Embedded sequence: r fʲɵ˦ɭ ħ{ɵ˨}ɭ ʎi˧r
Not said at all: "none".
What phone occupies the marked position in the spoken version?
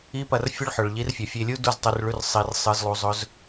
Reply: ɵ˨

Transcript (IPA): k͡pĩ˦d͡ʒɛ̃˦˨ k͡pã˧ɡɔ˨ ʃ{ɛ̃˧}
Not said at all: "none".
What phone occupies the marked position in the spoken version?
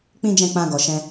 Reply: ɛ̃˧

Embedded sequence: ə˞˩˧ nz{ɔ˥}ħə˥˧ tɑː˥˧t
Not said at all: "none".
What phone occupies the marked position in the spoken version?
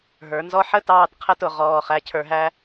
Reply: ɔ˧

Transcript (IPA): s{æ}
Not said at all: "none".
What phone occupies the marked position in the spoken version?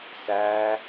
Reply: æ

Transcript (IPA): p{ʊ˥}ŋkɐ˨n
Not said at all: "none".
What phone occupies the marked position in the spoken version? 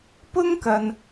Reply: ʊ˥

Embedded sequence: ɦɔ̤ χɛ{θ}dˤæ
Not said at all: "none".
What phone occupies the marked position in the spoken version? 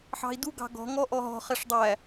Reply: ʂ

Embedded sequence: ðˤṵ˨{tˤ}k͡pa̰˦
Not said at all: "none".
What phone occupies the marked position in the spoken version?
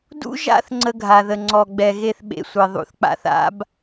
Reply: θ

